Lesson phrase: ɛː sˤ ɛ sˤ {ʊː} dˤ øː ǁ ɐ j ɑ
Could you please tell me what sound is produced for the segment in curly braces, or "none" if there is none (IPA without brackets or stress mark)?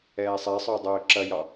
ʊː